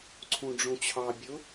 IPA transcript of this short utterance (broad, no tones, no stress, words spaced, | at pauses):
ǀʰũɖ͡ʐũt͡ɕʰɑ bʲʊ